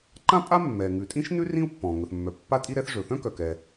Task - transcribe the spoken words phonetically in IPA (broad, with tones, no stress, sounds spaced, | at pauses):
ǃ ã˥ pʼ a˥ mː ɛ˩ ŋ ʉ˩ tʼ ĩ˥ ʃ n ʉ˥ r ĩ˥ u̯ pː ɔ̃˩ ŋ ɵ˩ θ mː œ˩ pː a˥ tʼ i˥ ɾ ɛ˥ θ ʐ ɵ˩ θ œ̃˥ k œ˩ k ɛ˩